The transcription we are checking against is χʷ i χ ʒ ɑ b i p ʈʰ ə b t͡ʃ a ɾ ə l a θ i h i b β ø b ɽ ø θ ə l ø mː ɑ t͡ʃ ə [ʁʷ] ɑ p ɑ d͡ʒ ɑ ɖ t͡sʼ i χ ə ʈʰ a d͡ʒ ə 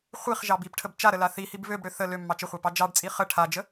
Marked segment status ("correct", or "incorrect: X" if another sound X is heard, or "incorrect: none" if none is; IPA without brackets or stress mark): incorrect: χʷ